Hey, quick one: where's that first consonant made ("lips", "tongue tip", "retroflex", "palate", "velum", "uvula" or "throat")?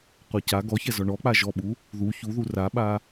uvula